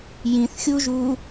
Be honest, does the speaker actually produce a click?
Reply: no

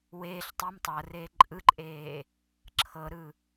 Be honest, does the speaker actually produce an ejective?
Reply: yes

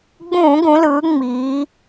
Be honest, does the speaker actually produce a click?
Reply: no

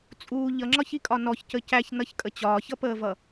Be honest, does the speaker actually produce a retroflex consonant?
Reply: no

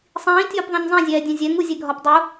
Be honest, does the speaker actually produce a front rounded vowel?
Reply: no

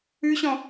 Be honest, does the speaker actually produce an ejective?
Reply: no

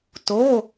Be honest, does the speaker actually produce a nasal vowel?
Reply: no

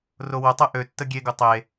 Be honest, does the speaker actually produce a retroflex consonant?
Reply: no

